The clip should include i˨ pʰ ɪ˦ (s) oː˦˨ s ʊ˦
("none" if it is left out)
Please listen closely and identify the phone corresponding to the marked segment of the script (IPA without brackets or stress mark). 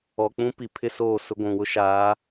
s